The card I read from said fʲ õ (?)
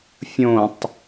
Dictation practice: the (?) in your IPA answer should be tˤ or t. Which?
tˤ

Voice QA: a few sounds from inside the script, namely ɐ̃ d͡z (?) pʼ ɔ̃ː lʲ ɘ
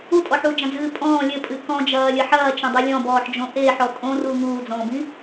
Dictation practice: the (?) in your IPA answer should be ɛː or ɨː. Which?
ɨː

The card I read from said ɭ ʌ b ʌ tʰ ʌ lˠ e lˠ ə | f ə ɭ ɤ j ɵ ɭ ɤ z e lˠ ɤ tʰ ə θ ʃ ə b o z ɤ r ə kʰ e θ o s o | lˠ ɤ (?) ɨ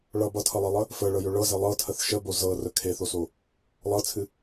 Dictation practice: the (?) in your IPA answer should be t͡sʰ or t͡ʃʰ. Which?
t͡sʰ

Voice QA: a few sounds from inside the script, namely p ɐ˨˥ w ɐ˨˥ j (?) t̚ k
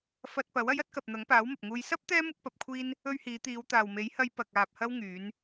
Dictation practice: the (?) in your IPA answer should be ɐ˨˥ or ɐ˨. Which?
ɐ˨˥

